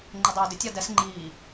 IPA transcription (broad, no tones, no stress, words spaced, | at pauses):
ŋ͡ǃɪdˤuːdɪ tʲadɛs ŋ͡ǃiː